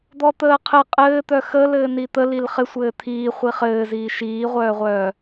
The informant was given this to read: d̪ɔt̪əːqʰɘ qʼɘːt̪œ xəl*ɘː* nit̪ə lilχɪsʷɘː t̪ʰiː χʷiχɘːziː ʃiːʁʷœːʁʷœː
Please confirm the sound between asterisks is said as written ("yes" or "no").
yes